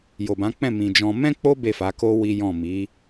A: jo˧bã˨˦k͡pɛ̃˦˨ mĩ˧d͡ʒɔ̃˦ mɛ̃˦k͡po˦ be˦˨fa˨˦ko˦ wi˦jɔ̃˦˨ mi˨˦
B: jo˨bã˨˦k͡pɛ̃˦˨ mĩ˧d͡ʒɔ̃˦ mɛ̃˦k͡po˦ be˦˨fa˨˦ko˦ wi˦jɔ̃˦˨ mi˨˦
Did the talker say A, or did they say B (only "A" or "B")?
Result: B